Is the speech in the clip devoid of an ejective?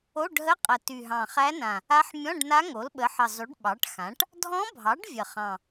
no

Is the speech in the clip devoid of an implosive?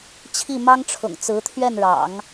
yes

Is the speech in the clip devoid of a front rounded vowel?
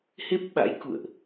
yes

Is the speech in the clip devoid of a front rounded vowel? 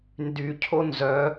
no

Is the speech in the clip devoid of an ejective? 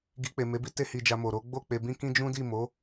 yes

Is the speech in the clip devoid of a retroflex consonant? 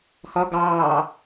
yes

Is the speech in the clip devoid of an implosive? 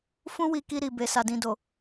yes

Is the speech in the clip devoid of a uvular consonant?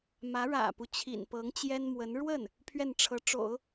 yes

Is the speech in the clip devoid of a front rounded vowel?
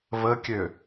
no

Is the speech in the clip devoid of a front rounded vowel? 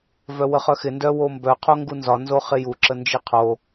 no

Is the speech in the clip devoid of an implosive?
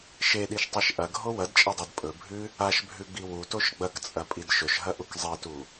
no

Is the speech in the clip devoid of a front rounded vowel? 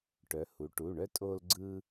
no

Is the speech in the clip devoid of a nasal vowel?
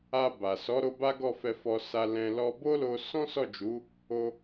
no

